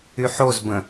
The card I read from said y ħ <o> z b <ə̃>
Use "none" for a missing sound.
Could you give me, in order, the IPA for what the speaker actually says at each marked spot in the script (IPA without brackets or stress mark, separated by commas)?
o, ə̃